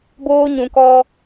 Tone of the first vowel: high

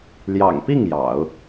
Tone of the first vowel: low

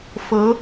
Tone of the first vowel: rising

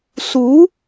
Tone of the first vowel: rising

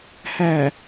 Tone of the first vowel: low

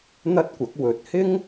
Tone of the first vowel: high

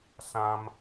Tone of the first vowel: high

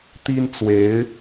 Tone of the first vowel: high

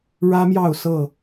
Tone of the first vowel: high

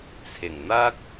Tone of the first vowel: low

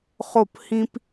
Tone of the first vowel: falling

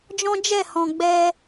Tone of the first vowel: high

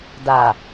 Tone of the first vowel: low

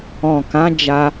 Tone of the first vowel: low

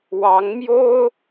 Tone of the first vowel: rising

